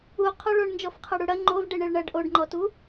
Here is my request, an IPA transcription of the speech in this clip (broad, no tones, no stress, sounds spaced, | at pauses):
u qʰ ɔ ɭ o ɳ n d͡ʒ ɔ f qʰ ɐ ɽ u ɽ ɐ ŋ͡ǃ o v ɖ e ɳ e ɭ ɳ ɐ ɖ ʔ o ɖ ŋ͡ǃ ɔ t u